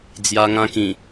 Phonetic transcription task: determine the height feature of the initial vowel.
low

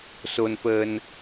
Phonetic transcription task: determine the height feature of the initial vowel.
mid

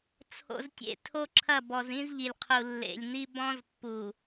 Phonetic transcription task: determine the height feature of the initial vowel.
mid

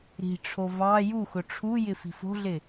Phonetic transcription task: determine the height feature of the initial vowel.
high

